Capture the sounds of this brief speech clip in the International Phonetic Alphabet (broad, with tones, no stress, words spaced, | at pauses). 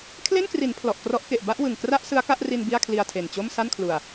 kʰle˥˩nkri˩˦n pʰlɔ˨˩ʔkrɔ˦˥ʔke˨˩ʔ ba˥˩ʔwɯ˨˩ŋ kra˥˩ʔ sɯ˦˥a̯ka˥˩ʔri˧n bi˥˩a̯kʰli˧a̯tʰe˨˩nt͡ɕo˥˩m sa˥˩nkʰlu˨˩a̯